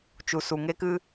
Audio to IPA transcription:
t͡ʃu˧su˧ŋe˦kɨ˦

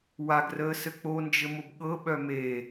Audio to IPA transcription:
waɡrəːsɘ k͡pond͡ʒɘmʊb ɠɤɓœ me

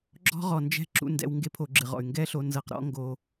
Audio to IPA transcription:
ɡ͡ǁɔ̤˦ ʁɔ˨nd͡ʒɛ̤˦ǁṵ˧ ndɛ̰˧w ŋɡe˦pʰo˧ɡ͡ǁɨ˨ʁɔ̰˨y̯ ŋɡɛ˦ɬo˧ nzɤ˧qɾɔ̰˦ ŋɡo˧

